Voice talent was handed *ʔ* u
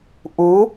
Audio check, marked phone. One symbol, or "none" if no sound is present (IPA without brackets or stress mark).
ʔ